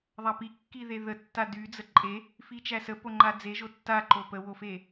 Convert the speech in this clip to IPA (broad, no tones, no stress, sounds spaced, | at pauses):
ðˤ a p i kː i ð e ð ə tː a d y d͡z ə ǃʼ e | f i t͡ʃ æ s ə p o ŋ͡ǃ a d͡z e ʒ o tː a ǃ o p ə w o f e